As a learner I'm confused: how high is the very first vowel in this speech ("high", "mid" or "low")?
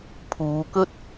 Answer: high